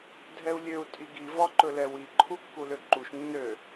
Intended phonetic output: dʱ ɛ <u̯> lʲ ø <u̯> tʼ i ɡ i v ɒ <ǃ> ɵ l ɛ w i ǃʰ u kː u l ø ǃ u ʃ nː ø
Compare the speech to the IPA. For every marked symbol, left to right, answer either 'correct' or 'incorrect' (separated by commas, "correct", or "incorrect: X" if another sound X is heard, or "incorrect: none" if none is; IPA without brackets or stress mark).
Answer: correct, correct, correct